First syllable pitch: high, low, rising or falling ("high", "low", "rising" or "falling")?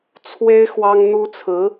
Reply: high